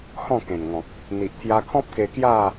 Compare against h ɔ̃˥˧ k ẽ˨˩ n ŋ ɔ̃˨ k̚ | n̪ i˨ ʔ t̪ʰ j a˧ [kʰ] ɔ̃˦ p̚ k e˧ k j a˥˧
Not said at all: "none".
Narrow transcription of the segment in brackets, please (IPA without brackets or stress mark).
kʰ